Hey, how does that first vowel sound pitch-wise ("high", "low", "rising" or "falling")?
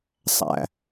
low